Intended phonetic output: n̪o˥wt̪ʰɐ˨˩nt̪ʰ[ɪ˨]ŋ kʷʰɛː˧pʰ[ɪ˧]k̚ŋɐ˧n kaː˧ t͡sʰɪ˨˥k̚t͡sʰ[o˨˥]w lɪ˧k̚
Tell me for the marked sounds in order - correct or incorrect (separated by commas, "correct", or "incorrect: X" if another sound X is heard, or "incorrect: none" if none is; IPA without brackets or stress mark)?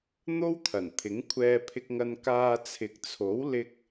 incorrect: ɪ˨˥, correct, correct